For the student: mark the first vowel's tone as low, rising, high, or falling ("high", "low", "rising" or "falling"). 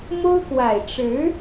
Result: high